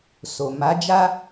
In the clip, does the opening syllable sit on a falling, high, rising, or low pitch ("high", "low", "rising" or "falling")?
low